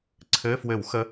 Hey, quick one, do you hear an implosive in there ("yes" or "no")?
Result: no